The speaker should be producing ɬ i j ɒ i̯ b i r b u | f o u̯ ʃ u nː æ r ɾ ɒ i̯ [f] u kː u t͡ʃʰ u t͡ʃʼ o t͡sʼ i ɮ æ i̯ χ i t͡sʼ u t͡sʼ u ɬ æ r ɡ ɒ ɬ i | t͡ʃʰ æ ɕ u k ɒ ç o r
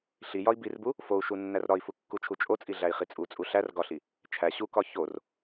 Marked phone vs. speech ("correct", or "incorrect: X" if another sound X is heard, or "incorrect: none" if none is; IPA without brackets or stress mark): correct